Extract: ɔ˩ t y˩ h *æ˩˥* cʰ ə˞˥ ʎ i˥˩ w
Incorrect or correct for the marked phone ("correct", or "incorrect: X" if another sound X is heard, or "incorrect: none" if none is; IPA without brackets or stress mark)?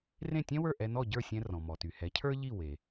incorrect: ɛ˩˥